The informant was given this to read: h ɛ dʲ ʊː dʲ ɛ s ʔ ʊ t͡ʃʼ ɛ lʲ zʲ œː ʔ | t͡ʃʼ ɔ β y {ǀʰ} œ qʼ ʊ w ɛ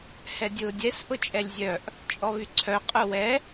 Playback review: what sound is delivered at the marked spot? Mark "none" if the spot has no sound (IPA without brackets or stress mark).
ǀʰ